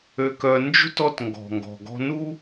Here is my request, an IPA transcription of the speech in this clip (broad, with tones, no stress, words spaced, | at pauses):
ø˧ kœ˧ nd͡ʒṳ˥t ɔ˥tŋɡɔ̤˩ŋɡɔ̤˩ ɡɔ̤˧nu˥